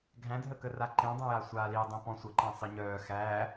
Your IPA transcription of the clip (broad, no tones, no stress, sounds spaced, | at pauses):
ɡʱ æ̃ dʱ ə k ə r a ǃ ẽ dˤ ẽ j a sʷ aː l i dˤ ĩ p ɔ̃ sʷ ə ǃ æ̃ sˤ ɨ ɲ œː x æː